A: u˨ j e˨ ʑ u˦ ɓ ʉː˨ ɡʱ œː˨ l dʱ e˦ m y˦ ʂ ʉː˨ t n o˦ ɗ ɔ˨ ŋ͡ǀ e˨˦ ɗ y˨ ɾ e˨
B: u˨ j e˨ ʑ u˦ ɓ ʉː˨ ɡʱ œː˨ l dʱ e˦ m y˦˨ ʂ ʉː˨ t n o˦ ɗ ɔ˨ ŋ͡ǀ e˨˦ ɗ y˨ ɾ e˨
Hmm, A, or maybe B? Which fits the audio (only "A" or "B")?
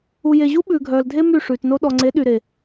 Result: B